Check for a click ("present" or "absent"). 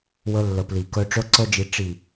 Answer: present